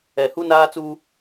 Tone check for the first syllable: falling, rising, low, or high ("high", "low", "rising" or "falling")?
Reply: low